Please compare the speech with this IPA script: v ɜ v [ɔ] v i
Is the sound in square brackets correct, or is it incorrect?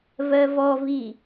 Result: correct